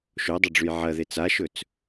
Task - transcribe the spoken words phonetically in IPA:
ʃodˤɐɖ͡ʐʉj ʕɐðe t͡saʃɵt͡s

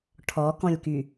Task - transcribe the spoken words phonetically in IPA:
ʈʰɔkɔ̃lʲky

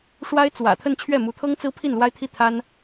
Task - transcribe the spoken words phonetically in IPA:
ʂwa˥ɪ̯t͡swä̰˨˩t̪ʰə˥˧n t͡ɕʰɥɛ˥˩mu˧˥t̪ʰɤ˥ŋt͡sɹ̩˥ pʰi˥˩nlwa˥ɪ̯t̪ʰi˥˩ t̪ʰa˥n

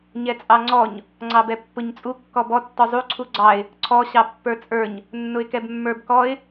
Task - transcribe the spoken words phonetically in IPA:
ɲɛt͡sʼɑŋ͡ǀɔɲ | ŋ͡ǀɑbɛpːʊɲt͡sʼu kːɔbɔ tːɔzˤu ǀʰuɡ͡ǀɑɪ̯ | ǀʰɔ ɕɑpːə˞t͡sʼə˞ɲ | nːʊɪ̯kɛbmːə˞bkɔɪ̯

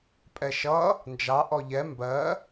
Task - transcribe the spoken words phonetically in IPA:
pʼɛʃʌ | nd͡ʒɑ ʔɔʎɛ mbɜ

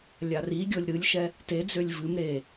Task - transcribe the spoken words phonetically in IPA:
lʲariɡʲɤlʲ ɾɨlʲʃɛ | ted͡zølʲ vɨm ɾe

